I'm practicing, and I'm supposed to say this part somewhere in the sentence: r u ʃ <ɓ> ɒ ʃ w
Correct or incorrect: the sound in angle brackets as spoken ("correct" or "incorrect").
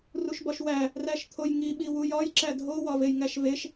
incorrect